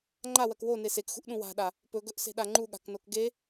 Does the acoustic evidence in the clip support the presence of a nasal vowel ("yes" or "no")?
yes